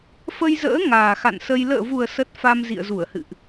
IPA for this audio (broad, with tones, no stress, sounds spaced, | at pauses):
f ə˧ j z ə̰ː˧˥ ŋ aː˨˩ x a̰˧˨ n s ə˧ j l ə̰ː˧˨ v u˨˩ ə̯ s ə˦˥ t̚ f a˧ m z ḭ˧˨ ə̯ z u˧˩ ə̯ h ɨ̰˧˨ ʔ